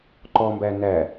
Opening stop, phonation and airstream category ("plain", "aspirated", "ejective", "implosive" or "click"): click